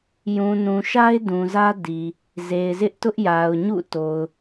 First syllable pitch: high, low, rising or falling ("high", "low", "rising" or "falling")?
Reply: low